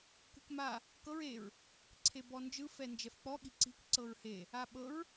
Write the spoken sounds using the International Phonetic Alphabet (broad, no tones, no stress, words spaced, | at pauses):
kṳkma | kɤɹ eɹ | ǀʰebɔnd͡ʒɯ fɛnd͡ʒɛfk͡pɔ ɠi̤ǀi̤k ǀɤɹhe | aɓɤɹ